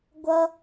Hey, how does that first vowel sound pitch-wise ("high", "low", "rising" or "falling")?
high